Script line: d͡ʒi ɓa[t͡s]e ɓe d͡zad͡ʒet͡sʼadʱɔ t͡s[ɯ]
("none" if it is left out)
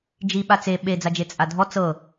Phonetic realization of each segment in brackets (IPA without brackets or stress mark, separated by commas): t͡s, ɤ